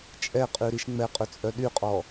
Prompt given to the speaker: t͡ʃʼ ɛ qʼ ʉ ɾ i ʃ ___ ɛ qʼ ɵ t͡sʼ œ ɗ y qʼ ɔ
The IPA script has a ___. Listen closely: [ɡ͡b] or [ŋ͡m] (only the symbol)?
ŋ͡m